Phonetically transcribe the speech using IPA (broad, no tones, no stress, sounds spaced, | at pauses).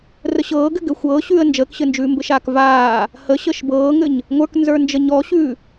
r ə ɕ ɤː ɡ ɘ ɡ ɘ xʷ ɤː ɕ ʉː ə̯ n d͡ʒ əː k ɕ ɘ n d͡ʒ ʉː m b ɘ ʃ aː k v aː | h ə ɕ ə ʃ b ɤː ŋ ɘ ɲ | ŋʷ ə˞ k n z ə˞ n d͡ʒ ə ɲ ɔ ɕ ʉː